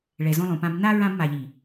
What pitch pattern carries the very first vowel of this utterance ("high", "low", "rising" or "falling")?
low